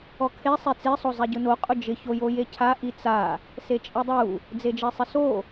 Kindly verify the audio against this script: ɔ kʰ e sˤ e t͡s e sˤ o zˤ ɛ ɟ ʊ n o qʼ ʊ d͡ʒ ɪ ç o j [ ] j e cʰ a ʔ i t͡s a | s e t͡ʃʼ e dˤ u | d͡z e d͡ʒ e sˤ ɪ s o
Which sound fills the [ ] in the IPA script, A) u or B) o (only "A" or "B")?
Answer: B